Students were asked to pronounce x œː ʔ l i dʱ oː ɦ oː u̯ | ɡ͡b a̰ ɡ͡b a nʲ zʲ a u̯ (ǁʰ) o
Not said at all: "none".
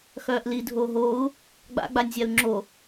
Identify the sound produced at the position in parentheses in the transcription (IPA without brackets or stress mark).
ŋ͡ǁ